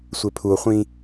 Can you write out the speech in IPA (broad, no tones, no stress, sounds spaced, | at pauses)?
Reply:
sʷ e pʰ u o̯ χʷ ĩ